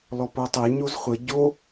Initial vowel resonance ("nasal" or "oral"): oral